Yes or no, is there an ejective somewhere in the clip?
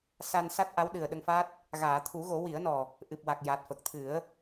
no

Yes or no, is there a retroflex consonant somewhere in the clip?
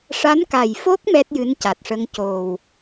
yes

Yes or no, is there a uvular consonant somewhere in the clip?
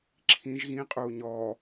yes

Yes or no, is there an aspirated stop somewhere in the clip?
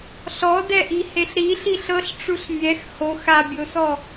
no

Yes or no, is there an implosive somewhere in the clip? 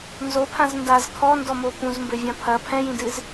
no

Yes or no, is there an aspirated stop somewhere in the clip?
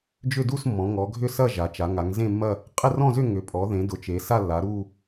no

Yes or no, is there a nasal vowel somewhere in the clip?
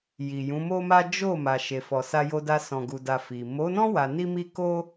yes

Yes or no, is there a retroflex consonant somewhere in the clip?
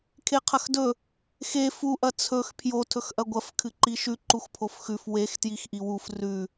no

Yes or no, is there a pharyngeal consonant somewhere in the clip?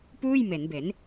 no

